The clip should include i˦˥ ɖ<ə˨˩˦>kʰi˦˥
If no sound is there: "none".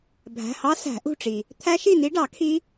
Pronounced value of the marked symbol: ɑ˨˩˦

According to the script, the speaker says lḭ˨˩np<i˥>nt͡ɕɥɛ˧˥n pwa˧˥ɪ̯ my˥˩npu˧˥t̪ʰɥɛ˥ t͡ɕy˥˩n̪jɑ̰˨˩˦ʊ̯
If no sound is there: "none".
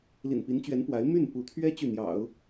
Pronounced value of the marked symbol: i˧˥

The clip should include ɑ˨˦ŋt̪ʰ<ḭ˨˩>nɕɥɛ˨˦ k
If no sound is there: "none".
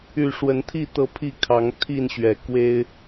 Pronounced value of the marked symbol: i˥˨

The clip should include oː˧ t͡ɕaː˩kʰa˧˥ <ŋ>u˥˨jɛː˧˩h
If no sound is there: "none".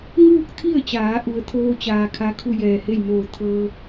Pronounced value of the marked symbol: kʰ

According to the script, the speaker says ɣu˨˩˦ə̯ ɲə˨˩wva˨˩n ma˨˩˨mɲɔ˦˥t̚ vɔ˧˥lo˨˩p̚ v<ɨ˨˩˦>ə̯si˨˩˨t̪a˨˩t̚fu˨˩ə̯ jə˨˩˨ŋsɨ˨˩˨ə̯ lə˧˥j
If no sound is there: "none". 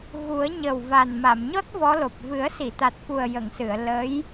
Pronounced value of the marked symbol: ɨ˨˩˦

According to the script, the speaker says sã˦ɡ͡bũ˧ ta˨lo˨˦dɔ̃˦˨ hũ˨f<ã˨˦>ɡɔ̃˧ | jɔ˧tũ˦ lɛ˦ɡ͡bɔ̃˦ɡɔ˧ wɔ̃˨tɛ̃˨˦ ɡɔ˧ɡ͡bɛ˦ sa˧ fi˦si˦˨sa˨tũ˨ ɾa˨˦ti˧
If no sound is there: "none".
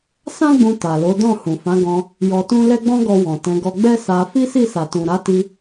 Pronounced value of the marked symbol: ã˨˦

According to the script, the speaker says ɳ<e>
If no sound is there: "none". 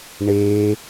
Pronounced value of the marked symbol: e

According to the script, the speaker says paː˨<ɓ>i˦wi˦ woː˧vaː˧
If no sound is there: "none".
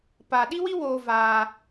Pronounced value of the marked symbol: ɗ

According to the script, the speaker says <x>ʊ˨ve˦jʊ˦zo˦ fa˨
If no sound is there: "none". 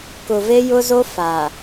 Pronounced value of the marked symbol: k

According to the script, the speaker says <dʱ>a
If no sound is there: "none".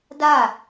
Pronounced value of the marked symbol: d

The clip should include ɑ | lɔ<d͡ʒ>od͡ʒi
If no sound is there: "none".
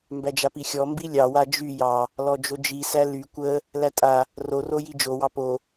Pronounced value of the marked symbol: d͡ʒ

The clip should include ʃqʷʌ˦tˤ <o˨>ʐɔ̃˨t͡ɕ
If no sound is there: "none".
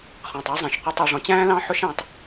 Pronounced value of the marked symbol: ɔ˨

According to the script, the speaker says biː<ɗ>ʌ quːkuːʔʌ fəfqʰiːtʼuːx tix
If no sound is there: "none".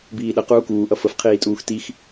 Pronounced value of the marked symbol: ɗ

